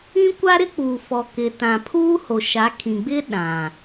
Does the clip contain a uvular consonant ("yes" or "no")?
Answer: no